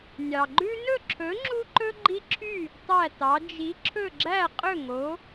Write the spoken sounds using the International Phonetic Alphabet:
nʲ ɑ˩ ɡ͡ǃ ʉ˦ n ɵ˥˨ ǁʰ ɵ˨˥ ŋ͡ǁ u˦ ǃ ɵ˦ ɡ͡ǃ i˦ ǁʰ y˥˨ | tˤ æ˥˨ t ɑ˨˥ d͡ʒ i˨˥ ǁʰ ɵ˥˨ ɡ͡ǁ æ˥˨ qʼ ɵ˥˨ ŋ o˨˥

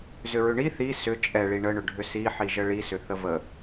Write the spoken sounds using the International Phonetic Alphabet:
z ʏ ɹ ʏ ɳ i θ i s ʏ t͡ʃʼ ɛ ɭ i ɳ ə ɳ ʏ ɖʱ ʏ s i ħ i ʒ ə ɭ i s ʏ θ ə v ə

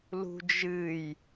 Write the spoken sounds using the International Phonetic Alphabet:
l ṳ d͡ʒ ɨ j

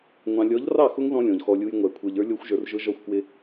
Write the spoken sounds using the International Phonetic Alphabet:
ŋʷ ɑ̃˨ lʲ ɔ˨˦ ʎ r ɑ˦˨ x ʊ˦ ŋ ð ɔ̃˦ lʲ ɔ̃˨ ʎ x ɔ˦ lʲ u˦ j ŋʷ æ˨ kʷʰ ə˞˨ ʎ ə˞˦ lʲ ɔ˦ xʷ ʒ ə˞˨ r ʒ ʊ˦ ʒ ɔ˦ xʷ k w ɪ˦

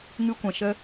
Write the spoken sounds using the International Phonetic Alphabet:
ŋ ɨ˧ kʷ ɛ̃˨ ʃ ə˧

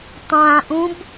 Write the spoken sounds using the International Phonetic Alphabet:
tˤ ã ʔ ũ b

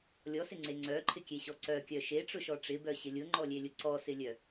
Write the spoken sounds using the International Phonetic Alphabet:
lʲ ɔ s ɪ ŋ͡ǀ e ŋ͡ǀ œ ǃʰ ɪ kʲ e ɕ ɔ ǀ œ kʲ œ ʃ e ʈ͡ʂ ʊ ʃ ɔ ʈ͡ʂ ɪ b œ ɕ ɪ lʲ ʊ ŋ͡ǃ ɔ lʲ e lʲ ʊ ǀ ɔ s ɪ lʲ œ

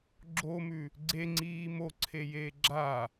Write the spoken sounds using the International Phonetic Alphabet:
ɡ͡ǁ o m ʉ | ɡ͡ǀ e ŋ͡ǀ iː m o ǀʰ e j eː ɡ͡ǁ a

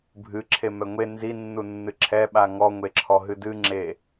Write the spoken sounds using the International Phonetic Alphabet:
bʱ ɨ ǁʰ e m ɛ ŋʷ e n z i nː u nː ɨ ǁʰ ɛ ɓ a ŋ ɔ ŋʷ e ǁʰ ɔ ɦ ɨ d ɨ ŋ͡ǁ e

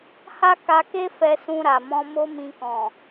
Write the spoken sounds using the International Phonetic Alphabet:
h a˦ k a˧ k e˦ f ɛ˧ s ũ˧ ɾ a˨ m ɔ̃˧ m o˦ m ĩ˧ k ɔ̃˨

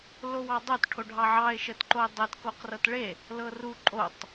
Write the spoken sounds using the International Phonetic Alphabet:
l o w ɑ dˤ o t ʈʰ o ɖʱ ɑ ʕ ɑ ɪ̯ ʃ ə t ǃ o ɪ̯ dˤ e t k o q r ɤ t ɭ e | l ɤ r u ǃʼ o tˤ

